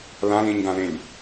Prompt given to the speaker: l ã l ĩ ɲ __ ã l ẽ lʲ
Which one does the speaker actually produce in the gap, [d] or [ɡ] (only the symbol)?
ɡ